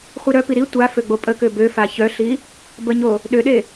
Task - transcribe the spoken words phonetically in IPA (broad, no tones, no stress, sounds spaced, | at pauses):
χʷ i ɾ œ p i ɾ i tʷ a f ø ɡ͡b o pʼ ə k ø b ø f a ç œ ɬ i | b ə ɲ o | ɗ ø ɗ e